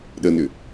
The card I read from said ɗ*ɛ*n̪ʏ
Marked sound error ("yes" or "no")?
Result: yes